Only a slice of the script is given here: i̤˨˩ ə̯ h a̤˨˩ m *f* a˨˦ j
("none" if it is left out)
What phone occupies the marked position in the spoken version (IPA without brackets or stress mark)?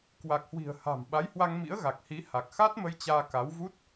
ɓ